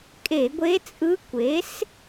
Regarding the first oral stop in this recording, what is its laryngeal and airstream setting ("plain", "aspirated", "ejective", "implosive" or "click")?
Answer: ejective